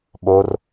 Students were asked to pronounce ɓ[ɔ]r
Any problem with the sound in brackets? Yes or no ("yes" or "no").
yes